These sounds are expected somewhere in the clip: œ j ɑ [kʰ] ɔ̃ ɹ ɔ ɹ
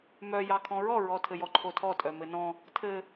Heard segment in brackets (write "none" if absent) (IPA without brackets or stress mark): kʰ